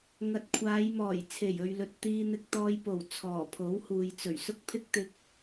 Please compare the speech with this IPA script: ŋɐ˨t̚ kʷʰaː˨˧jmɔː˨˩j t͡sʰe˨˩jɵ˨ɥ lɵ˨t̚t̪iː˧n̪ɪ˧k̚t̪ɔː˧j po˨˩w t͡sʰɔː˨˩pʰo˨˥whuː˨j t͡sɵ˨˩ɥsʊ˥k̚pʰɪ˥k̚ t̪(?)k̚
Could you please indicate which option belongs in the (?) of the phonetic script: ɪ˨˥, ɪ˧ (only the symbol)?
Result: ɪ˧